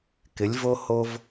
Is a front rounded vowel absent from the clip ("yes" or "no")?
yes